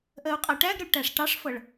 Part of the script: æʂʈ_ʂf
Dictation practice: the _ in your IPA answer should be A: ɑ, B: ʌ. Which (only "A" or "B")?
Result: A